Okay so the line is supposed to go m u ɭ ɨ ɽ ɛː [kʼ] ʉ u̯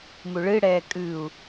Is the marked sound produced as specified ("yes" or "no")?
yes